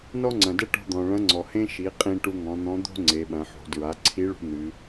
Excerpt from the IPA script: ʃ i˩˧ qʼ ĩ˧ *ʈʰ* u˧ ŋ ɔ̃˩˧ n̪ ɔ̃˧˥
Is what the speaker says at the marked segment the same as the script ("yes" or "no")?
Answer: no